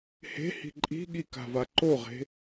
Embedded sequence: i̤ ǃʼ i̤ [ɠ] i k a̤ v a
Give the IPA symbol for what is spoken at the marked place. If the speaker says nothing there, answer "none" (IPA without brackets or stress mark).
ɠ